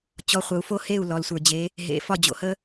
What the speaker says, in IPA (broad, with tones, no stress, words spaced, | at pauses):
t͡ɕɔ˧˥χʷə˧u̯fo˥ he˥˨u̯ lɔ˧lsʷə˞˧d͡ʑe˧˥ | ɦḛ˧˥ fɒ˥˨d͡ʑo̰˧hə˥